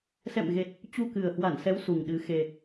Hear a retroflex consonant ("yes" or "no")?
no